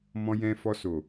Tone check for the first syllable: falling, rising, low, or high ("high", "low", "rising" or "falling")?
low